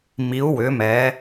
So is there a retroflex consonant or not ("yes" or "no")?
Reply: no